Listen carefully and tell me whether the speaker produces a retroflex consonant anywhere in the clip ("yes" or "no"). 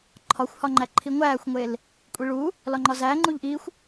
yes